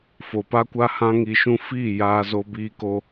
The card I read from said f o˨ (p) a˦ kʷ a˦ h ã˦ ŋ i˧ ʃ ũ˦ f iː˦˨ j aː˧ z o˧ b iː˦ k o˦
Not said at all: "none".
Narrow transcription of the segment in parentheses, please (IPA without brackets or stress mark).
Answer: p